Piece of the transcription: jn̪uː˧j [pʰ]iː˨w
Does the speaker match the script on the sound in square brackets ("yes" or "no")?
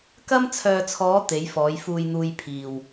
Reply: yes